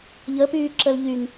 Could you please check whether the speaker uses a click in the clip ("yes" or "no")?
yes